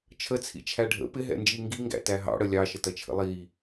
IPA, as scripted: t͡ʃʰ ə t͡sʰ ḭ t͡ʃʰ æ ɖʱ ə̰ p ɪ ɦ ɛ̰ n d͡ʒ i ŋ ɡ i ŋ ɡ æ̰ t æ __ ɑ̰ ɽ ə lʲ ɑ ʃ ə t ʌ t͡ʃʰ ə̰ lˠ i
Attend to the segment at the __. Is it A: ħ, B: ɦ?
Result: B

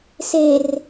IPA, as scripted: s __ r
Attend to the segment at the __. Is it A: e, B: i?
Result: A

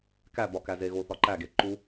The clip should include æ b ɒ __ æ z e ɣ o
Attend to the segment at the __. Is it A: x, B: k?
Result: B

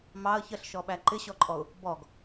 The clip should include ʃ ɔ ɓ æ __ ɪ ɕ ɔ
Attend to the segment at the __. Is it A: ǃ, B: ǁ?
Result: A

